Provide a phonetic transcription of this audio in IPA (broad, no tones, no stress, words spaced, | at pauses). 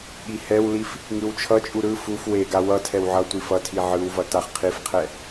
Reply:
ɠihɛwlif | ŋɯwt͡ʃʰʌt͡ʃʼu ɾɯ fuf weɡa wʌ tʰɛwʕʌtʷif ʌtʰi ʕɯwvʌ taχqʰifqʰɛ